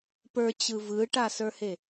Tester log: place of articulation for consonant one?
labial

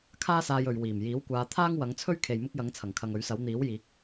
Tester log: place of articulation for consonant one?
velar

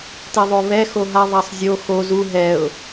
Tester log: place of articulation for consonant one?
alveolar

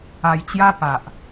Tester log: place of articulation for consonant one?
palatal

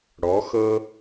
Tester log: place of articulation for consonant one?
retroflex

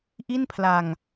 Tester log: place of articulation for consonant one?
glottal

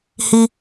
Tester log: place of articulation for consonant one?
glottal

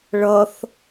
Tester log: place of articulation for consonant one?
retroflex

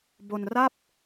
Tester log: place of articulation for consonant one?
labial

